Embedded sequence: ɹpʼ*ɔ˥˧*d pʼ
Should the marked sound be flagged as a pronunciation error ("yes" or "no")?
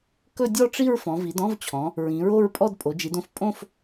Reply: no